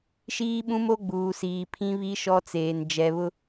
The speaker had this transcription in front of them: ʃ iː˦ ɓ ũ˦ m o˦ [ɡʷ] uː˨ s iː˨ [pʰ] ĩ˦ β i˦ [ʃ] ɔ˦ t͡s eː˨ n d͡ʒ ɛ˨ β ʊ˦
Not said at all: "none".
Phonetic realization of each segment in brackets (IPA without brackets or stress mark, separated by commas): ɡ͡b, pʰ, ʃ